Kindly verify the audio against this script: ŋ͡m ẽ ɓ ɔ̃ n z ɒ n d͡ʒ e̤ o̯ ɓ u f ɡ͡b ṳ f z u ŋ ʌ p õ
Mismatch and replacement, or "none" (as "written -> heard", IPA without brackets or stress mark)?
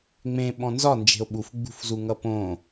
none